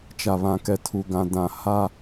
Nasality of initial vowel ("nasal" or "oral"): oral